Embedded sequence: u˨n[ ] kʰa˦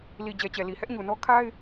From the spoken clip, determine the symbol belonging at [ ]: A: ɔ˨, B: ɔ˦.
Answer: B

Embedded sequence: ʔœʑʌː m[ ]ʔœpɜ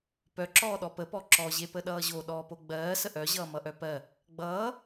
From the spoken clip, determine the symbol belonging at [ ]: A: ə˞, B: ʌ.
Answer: B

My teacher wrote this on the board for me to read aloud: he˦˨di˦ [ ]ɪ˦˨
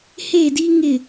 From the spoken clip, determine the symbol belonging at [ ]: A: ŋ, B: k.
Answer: A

